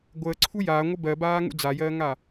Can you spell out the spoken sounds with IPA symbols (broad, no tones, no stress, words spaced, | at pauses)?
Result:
ɡʷəːǀʰu jaːŋʷə bɜbaːŋṵ d͡zajɜːŋa